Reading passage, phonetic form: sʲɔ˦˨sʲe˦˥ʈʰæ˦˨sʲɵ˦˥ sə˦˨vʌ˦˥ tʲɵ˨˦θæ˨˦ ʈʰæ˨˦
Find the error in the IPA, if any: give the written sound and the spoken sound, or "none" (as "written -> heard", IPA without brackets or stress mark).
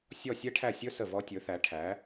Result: ʌ˦˥ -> ɔ˦˥